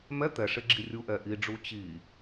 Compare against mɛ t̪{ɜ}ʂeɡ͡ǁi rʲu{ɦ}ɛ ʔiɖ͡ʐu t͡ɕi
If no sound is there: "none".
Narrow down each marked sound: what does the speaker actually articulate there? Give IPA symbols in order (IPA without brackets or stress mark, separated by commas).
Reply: ɛ, ʔ